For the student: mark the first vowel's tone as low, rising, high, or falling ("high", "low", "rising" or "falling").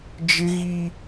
high